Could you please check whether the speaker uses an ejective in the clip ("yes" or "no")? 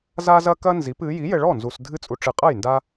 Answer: yes